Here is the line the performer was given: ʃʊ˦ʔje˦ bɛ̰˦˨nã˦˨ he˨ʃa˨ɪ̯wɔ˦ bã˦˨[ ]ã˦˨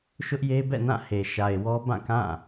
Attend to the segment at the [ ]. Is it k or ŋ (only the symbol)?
k